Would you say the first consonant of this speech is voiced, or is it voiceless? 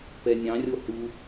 voiceless